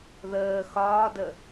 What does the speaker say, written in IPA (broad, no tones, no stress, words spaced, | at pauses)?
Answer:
ðəː xɒːdə